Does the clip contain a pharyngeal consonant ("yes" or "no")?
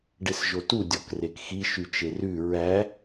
no